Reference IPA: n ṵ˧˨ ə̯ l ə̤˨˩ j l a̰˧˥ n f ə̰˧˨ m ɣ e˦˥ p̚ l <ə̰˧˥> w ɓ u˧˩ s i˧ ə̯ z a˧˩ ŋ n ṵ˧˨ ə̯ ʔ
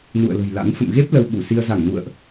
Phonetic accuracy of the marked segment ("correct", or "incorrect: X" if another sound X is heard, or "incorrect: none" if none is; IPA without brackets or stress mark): incorrect: ə˧